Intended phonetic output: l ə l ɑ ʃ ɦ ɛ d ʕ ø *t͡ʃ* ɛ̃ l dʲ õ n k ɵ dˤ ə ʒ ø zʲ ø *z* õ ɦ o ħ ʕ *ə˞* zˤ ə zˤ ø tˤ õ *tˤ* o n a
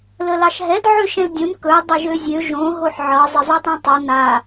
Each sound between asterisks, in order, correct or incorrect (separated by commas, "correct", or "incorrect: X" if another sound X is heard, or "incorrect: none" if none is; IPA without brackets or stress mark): incorrect: ʃ, incorrect: ʒ, incorrect: ɤ, correct